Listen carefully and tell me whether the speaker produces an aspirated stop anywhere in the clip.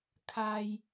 yes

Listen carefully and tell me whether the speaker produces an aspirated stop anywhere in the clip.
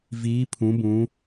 yes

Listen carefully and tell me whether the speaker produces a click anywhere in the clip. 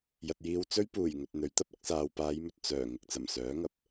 no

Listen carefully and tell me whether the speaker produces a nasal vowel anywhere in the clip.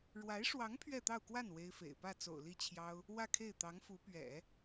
no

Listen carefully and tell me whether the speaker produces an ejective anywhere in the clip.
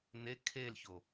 no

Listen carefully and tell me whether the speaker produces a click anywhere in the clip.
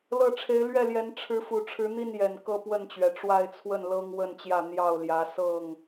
no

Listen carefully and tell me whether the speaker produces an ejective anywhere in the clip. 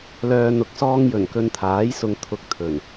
no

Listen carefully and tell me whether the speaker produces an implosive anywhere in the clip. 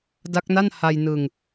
no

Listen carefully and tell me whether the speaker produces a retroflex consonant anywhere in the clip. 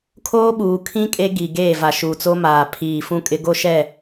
no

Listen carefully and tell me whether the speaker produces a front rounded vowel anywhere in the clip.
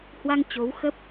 no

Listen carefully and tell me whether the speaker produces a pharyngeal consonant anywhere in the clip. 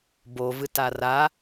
no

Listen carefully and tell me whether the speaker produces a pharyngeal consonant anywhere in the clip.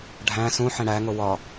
yes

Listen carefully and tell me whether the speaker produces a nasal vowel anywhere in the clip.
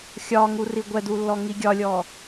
no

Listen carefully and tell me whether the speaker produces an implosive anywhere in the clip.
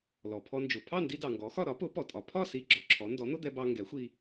no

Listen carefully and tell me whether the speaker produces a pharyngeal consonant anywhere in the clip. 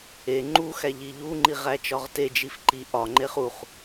no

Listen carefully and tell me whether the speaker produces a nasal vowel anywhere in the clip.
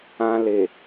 yes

